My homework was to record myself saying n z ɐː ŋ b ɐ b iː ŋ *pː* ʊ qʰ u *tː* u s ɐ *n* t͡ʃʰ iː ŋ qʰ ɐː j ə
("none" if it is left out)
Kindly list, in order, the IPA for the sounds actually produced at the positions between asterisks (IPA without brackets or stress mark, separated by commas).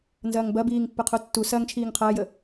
pː, tː, ŋ